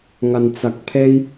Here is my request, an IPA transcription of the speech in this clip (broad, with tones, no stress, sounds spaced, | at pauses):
ŋ ɐ˧ n t͡s ɐ˧ k̚ pʰ e˥ j